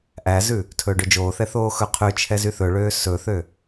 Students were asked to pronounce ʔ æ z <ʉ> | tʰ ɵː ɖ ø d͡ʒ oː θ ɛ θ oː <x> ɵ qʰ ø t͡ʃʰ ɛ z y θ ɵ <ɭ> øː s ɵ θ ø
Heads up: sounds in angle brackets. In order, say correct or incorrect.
correct, correct, correct

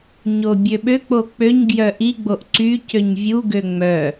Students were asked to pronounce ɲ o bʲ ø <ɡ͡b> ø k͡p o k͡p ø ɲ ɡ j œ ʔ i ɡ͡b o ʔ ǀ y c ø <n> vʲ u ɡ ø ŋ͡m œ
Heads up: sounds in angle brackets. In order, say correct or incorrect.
incorrect: ɓ, incorrect: ɲ

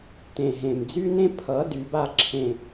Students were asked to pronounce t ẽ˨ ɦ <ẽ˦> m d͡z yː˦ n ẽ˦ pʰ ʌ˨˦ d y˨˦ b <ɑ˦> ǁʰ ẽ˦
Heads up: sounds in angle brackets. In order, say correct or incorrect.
incorrect: ẽ˨, incorrect: a˦

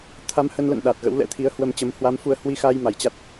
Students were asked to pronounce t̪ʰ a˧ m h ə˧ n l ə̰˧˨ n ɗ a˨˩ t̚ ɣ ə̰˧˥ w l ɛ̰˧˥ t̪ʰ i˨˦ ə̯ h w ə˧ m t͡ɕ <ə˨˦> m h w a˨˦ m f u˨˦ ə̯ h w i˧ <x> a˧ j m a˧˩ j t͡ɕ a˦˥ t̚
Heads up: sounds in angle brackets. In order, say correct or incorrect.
correct, correct

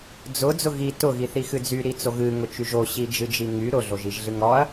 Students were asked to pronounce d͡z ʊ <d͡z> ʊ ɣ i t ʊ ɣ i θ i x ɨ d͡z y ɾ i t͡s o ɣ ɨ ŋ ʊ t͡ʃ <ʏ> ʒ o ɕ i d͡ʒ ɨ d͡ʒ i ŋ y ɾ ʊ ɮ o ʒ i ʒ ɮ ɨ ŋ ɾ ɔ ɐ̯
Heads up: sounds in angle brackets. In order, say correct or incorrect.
correct, incorrect: y

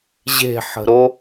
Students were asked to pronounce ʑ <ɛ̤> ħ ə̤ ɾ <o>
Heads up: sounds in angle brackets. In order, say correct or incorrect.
incorrect: e̤, correct

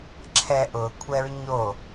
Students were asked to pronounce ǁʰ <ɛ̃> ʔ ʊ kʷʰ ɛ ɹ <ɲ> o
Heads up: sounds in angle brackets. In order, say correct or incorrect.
incorrect: ɛ, correct

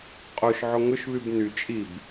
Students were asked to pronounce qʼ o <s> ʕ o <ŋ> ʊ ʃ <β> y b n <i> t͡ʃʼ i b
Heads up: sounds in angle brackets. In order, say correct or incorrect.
incorrect: ʃ, correct, correct, incorrect: y

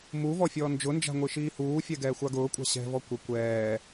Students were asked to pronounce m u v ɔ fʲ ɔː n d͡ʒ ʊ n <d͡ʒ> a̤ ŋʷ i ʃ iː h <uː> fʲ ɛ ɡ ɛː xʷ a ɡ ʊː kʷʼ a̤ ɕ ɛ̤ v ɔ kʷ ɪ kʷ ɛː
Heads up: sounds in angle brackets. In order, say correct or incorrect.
correct, correct

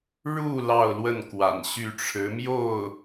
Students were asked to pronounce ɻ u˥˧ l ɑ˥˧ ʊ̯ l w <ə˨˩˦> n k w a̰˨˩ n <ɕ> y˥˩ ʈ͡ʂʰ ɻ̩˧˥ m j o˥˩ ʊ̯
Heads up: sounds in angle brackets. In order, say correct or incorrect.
incorrect: ə˥˩, correct

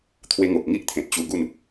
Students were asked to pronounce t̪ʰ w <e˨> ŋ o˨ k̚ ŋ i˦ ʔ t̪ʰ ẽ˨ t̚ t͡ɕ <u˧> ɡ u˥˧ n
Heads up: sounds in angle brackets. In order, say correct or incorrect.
incorrect: e˧, correct

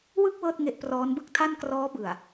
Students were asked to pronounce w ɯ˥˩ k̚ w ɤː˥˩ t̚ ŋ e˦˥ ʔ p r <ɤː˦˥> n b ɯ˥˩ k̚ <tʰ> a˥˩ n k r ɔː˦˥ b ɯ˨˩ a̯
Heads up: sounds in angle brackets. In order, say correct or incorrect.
incorrect: ɔː˦˥, correct

